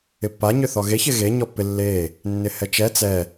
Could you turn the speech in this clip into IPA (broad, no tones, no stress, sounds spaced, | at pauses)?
ɪ pː a ɲ ʏ θ ɔ ɣ e ç ɪ ɣ e ɲ ɔ pː ɪ lː e | nː ɪ h ɛ t͡ʃ ɛ t͡s ɛ